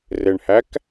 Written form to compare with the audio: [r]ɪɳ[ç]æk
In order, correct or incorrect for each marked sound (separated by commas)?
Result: correct, incorrect